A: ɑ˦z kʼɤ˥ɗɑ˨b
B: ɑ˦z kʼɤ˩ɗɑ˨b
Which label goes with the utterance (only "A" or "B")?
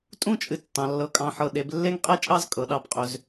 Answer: B